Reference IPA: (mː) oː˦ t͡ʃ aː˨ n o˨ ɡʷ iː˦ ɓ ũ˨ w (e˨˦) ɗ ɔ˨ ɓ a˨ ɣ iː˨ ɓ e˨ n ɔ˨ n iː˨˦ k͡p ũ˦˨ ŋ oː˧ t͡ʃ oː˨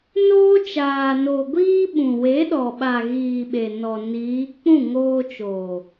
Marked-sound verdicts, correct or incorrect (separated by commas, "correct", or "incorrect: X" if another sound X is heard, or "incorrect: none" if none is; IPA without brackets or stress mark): incorrect: n, correct